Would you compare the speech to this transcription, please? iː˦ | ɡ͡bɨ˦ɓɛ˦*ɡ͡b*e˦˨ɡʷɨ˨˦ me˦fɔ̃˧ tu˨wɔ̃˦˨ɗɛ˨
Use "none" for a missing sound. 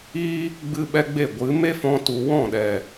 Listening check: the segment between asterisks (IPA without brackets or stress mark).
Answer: ɡ͡b